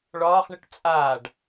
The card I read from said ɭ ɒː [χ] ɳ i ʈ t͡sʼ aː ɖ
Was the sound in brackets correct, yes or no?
yes